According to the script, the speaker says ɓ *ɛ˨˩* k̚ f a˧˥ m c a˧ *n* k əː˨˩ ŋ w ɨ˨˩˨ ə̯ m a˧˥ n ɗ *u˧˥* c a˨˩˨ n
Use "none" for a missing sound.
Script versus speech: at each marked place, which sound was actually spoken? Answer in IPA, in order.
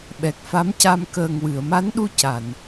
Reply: ɛ˨˩, m, u˧

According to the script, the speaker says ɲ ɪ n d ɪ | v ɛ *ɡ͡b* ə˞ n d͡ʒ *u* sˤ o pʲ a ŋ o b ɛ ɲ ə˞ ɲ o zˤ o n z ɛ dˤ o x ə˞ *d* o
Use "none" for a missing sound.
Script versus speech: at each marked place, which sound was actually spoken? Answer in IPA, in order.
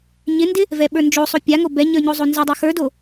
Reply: ɓ, o, d

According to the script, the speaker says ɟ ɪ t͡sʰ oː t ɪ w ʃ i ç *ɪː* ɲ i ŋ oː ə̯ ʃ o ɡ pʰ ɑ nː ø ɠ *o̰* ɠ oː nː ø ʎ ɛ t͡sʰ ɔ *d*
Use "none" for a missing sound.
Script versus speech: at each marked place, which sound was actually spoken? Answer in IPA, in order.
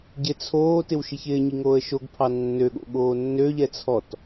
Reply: ɪː, o̰, t

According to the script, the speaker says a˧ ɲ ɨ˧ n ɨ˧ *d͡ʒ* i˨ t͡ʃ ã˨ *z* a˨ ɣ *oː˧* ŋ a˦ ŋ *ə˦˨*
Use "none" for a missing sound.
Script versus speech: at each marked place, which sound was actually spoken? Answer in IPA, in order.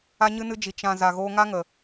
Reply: d͡ʒ, z, oː˧, ə˨

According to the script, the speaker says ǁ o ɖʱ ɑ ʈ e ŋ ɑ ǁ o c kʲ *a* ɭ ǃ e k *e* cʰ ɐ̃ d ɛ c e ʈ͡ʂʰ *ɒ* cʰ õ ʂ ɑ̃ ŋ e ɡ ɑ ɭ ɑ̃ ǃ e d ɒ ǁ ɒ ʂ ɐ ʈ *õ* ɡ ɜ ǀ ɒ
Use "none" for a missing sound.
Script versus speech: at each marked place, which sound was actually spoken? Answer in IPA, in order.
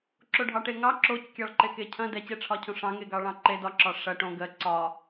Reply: ɑ, e, ɒ, õ

